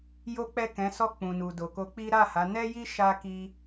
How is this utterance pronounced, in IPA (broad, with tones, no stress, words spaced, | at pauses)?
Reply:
jo˦k͡pɛ˦˨kɛ̃˨˦ sɔ˦˨k͡pũ˨nu˨ do˨ko˧k͡pi˦ ɾa˦˨ha˨˦ nɛ˦ji˦ ʃa˦ ki˦